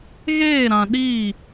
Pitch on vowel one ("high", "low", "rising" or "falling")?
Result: falling